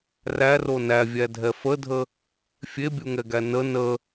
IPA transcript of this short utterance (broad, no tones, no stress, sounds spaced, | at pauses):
r æ r o n æ vʲ æ dʱ ɛ f ə dʱ ə | fʲ e bʲ u ŋ ɛ ɡ æ n ə n ə